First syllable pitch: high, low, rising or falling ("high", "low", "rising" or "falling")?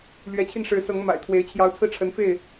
rising